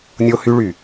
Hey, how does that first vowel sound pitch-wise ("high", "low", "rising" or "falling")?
high